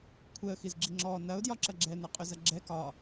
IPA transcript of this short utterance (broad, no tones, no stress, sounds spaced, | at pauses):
kʷʰ ɛ ə̯ x i z ɡ͡ǁ i ŋ͡ǁ ɔ n ɐ ʊ̯ d j ɒ ǁ ɐ ɡ͡ǁ ɛ n ɐ qʼ ʏ z ɐ ɡ͡ǁ ɛ k ɒ